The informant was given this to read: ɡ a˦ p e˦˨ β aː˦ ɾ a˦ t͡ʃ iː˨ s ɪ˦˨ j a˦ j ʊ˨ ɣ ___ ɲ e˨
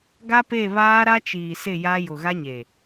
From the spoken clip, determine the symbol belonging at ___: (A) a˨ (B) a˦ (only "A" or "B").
B